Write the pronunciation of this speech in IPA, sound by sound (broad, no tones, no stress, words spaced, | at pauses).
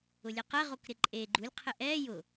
ʊlʲɛqɛ ʁokɾɪǃʼe ɡ͡ǃulʲ qʰɪʔɛː jʊ